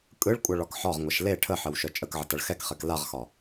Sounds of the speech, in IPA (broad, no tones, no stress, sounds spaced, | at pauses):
kʼ ɯ ɭ kʷʼ ʌ ɭ ɒ k ħ ɒ ʁ ŋʷ ʌ ʃ l e ʈʰ ə ħ ə w ʃ œ t͡ʃʼ ə k ʕ ə t ʌ ɭ x ɛ k χ ɛ k l a ʁ x ɒ